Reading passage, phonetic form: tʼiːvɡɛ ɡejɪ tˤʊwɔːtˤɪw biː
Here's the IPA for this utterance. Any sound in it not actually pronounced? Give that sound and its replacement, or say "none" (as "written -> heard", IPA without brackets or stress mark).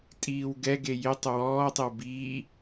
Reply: v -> w